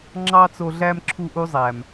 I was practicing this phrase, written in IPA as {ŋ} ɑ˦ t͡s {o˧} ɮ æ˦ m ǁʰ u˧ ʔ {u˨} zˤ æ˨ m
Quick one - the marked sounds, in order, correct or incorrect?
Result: incorrect: ŋ͡ǁ, correct, incorrect: u˧

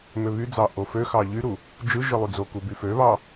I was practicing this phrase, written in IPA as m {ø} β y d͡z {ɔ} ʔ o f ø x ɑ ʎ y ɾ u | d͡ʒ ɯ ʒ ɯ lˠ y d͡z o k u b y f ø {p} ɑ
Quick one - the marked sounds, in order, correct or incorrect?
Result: correct, incorrect: ɑ, incorrect: β

